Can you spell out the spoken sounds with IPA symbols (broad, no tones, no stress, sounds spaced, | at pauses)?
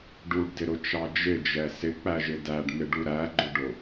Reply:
ɖ u ɖ d ɪ ɾ ʊ t͡ʃ ɑ d͡ʒ ɪ d͡ʒ ɛ s ɪ k͡p æ ʒ ɪ d æ ɖ n̪ ɪ ɖ u ɾ æ ɡ͡ǃ ʊ ɖ ʊ